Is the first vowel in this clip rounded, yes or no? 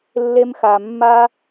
no